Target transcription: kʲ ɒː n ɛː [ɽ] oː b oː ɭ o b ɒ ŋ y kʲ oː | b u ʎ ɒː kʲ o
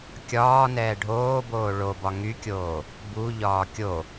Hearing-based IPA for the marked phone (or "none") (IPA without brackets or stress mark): ɖʱ